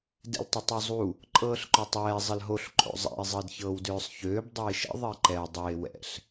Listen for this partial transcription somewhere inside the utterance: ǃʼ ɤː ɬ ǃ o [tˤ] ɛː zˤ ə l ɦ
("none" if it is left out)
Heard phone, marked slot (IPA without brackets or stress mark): tˤ